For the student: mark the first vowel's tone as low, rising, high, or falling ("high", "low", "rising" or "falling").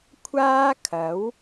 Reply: high